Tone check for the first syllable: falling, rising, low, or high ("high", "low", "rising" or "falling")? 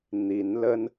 rising